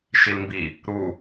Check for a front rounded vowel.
absent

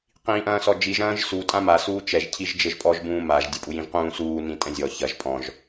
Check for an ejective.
present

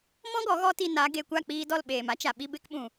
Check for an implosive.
present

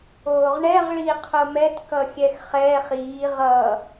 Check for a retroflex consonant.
present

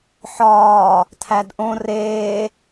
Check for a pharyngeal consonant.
present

